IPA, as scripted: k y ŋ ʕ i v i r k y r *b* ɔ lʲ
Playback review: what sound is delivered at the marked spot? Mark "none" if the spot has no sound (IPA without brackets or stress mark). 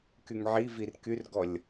ɡ